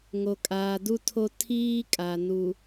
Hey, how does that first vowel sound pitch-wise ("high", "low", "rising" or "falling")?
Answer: low